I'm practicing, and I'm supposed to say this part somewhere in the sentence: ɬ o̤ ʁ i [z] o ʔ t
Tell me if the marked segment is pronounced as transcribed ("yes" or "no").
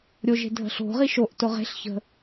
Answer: no